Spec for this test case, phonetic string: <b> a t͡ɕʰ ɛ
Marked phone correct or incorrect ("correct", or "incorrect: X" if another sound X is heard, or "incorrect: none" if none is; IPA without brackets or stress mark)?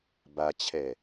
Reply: correct